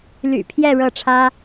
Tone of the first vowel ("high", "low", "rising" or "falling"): low